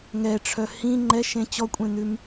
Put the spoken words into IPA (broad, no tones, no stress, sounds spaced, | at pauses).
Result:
ŋ ɛ ʈ͡ʂʰ œ h ĩ ŋ͡ǃ ɛ ʃ ẽ t͡ɕ ɔ kʷʼ ẽ n ʉ m